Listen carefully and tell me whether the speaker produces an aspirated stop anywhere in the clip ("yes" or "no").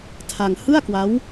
yes